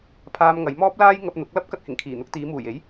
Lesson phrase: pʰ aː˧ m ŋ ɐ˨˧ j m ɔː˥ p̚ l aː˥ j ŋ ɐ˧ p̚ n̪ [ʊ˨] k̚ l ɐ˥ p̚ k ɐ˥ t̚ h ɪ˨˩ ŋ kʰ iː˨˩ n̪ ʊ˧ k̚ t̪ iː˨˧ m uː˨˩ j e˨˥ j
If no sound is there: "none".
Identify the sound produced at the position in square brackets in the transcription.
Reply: ʊ˨˥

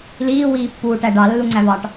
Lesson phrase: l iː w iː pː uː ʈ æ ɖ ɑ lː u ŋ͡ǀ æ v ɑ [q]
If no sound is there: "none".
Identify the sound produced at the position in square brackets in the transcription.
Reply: ʈ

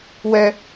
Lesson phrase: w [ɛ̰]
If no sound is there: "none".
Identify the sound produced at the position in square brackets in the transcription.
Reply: ɛ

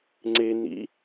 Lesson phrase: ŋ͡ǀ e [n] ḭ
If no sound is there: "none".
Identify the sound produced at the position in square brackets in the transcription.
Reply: n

